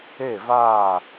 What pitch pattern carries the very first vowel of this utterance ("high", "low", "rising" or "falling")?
falling